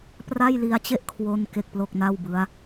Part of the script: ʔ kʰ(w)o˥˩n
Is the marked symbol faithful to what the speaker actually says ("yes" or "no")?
yes